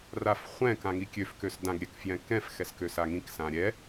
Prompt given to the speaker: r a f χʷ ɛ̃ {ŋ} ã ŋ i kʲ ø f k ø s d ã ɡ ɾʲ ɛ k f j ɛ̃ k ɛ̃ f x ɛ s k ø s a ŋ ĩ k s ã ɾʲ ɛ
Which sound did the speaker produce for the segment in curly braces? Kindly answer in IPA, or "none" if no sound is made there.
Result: k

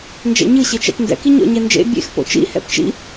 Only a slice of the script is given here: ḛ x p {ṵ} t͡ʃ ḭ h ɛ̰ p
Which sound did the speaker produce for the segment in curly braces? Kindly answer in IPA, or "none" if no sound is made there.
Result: o̰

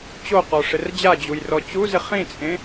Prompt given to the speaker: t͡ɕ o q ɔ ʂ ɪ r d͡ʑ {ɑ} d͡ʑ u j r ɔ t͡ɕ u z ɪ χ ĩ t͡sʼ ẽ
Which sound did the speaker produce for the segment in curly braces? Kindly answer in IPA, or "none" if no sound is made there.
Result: a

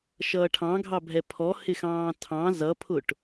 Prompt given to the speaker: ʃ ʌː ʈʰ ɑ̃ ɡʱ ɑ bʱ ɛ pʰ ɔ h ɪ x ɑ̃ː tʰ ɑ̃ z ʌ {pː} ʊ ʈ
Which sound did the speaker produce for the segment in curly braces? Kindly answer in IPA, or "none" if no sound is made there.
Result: pʰ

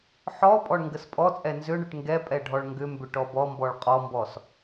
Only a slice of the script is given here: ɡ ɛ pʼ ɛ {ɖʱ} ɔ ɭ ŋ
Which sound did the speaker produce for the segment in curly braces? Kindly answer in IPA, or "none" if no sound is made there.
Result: ɖʱ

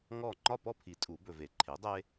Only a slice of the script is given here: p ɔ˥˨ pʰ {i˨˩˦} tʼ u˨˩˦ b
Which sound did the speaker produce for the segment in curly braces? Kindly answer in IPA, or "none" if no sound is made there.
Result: i˨˩˦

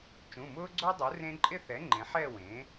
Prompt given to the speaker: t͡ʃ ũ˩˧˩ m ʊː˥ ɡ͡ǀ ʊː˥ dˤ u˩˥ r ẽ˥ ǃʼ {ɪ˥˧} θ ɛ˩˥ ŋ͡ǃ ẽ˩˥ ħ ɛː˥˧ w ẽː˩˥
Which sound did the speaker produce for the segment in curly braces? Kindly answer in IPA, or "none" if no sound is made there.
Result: ɪ˥˧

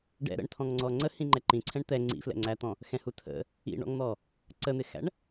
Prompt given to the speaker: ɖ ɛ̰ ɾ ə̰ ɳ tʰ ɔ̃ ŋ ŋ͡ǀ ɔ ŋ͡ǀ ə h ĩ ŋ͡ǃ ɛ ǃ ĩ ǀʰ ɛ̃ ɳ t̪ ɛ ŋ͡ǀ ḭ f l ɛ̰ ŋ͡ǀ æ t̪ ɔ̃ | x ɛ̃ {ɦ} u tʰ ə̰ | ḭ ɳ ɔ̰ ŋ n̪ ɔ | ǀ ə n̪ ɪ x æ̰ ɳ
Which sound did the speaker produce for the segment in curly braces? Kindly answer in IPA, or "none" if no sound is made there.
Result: h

